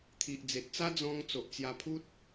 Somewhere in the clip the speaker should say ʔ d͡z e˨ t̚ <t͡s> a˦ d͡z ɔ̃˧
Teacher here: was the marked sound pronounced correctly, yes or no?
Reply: yes